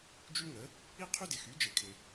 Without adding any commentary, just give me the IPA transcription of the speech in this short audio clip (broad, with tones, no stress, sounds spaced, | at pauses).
d͡ʒ y˥ ŋ ə˨˥ | i˥ qʰ y˥ d ɪ˨ x y˨˥ d͡ʒ ɪ˨˩˦ kʰ ɪ˨